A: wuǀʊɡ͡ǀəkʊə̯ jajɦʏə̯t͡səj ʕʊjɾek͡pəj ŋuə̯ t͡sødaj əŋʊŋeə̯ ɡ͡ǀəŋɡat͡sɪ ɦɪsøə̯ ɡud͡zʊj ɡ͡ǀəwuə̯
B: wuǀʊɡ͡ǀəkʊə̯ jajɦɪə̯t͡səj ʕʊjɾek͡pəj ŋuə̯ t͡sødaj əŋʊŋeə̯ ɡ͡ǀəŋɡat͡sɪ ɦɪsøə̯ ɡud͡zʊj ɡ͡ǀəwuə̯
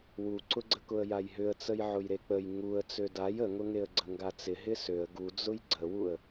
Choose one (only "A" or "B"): A